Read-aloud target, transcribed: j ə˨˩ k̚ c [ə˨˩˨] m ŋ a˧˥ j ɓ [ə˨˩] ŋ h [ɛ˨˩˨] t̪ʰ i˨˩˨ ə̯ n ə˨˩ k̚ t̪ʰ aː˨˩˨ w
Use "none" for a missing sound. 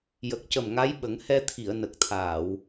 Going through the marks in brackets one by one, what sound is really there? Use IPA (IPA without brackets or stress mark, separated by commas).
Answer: ə˨˩, ə˨˩˦, ɛ˧